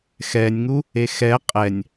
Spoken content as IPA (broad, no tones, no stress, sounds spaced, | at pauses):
x ɛ nʲ ŋ u | e x ɛ qʼ ɛ nʲ